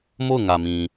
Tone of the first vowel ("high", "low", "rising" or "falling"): falling